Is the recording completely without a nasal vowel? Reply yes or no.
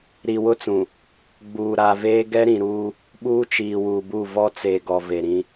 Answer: no